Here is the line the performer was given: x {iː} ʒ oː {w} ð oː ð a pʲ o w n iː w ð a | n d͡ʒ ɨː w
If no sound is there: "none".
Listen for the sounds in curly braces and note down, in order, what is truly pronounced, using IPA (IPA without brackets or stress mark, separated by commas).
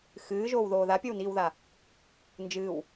ɨː, w